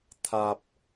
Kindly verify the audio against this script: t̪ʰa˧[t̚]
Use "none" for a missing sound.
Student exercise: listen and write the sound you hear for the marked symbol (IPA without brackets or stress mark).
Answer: p̚